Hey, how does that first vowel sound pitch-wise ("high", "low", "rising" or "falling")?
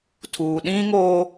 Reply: low